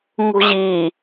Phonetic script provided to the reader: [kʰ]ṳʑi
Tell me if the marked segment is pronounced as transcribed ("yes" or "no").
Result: no